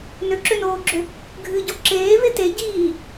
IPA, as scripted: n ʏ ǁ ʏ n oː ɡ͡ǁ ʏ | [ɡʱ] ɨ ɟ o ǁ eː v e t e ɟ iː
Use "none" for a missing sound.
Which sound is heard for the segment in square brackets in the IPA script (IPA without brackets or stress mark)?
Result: ɡʱ